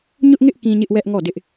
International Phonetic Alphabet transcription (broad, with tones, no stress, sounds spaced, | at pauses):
ɲ ʊ˦ ʔ ŋ ɪ˦ ʔ k ĩ˦ ɲ ɪ˦ ʔ w ɛ˦ ʔ ŋ ɔ˦˨ d ɪ˦ ʔ